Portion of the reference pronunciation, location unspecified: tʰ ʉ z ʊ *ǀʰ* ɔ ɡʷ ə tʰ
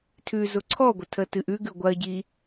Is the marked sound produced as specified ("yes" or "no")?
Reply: yes